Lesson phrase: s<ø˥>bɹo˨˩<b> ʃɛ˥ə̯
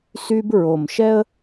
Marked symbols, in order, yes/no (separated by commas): no, no